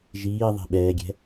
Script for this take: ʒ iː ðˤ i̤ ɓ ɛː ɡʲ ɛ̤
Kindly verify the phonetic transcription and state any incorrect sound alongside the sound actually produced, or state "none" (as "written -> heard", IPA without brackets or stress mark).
none